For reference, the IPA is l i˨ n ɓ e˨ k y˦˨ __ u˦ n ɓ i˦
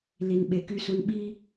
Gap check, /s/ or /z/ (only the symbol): s